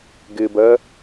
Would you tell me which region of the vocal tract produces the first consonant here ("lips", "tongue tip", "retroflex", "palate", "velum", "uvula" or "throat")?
velum